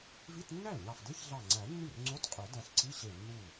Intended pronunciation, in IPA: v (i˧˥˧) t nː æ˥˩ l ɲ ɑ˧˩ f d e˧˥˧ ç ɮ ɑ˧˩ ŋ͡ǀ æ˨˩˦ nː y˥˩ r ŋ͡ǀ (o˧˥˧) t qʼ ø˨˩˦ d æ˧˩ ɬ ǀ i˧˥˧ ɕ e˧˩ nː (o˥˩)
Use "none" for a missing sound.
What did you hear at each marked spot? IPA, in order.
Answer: i˧˥˧, o˧˥˧, u˥˩

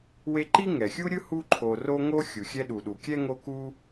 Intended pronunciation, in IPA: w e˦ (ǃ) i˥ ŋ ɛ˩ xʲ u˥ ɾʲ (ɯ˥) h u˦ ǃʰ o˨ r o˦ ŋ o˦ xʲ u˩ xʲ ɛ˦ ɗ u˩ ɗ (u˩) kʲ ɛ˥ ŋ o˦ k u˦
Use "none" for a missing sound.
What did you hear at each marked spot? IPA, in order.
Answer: ǃ, ɯ˥, u˩

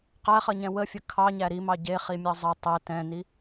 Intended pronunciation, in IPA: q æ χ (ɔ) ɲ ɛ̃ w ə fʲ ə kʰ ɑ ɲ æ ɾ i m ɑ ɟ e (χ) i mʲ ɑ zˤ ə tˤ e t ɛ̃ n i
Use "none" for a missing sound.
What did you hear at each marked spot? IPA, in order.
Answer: ʌ, χ

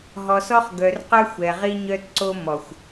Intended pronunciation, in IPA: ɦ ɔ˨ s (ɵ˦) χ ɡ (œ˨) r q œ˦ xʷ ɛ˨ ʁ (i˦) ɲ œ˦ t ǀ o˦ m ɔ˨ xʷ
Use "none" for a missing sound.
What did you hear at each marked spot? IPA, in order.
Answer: ɔ˦, œ˨, i˦

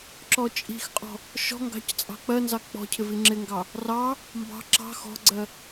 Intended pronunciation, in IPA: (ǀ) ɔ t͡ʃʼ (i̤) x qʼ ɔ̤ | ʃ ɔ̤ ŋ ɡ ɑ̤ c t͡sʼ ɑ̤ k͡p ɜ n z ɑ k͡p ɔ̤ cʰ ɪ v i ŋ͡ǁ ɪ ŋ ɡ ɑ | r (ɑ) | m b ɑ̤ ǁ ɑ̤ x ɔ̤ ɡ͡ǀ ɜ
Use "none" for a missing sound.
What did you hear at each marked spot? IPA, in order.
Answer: ǁ, i̤, ɑ

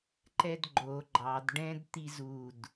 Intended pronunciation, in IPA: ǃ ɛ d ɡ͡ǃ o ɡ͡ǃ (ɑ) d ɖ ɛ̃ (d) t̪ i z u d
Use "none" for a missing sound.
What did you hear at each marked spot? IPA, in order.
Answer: ɑ, d

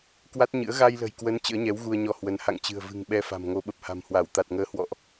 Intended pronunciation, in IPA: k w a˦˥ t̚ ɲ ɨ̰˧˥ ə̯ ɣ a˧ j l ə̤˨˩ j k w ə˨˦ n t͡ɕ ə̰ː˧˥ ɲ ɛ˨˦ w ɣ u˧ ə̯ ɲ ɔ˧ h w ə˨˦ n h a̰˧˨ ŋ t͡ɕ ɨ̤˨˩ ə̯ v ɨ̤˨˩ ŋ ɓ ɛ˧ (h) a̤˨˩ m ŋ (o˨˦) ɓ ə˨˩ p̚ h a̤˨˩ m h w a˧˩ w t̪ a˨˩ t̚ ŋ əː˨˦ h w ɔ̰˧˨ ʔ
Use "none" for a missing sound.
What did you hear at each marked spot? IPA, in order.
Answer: f, o˨˦

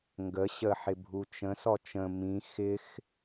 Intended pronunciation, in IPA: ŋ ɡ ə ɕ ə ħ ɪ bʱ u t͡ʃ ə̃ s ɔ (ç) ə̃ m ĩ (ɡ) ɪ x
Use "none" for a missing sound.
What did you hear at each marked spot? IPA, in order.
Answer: t͡ʃ, x

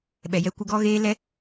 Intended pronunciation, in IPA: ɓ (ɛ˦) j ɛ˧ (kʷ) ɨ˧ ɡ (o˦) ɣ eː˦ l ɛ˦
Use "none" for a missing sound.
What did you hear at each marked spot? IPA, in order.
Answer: ɛ˨, kʷ, ɔ˦

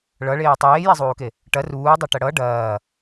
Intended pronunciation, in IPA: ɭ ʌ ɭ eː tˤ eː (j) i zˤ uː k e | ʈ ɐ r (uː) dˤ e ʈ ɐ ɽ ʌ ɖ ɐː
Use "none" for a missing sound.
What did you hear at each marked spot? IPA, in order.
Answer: j, uː

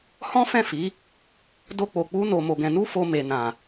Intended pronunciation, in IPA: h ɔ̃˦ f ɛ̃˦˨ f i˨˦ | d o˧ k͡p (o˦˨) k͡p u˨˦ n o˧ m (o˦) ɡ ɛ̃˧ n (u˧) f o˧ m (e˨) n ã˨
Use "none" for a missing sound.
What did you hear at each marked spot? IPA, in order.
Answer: o˨, o˧, u˦, e˨

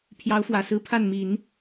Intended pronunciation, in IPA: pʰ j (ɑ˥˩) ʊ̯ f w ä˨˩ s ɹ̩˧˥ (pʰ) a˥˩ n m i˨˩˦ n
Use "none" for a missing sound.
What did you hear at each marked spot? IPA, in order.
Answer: ɑ˧˥, pʰ

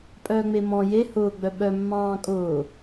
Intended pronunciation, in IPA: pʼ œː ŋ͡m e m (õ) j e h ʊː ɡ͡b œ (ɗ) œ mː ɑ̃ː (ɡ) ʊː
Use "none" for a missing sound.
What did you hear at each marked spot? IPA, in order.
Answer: ɔ̃, ɓ, kʼ

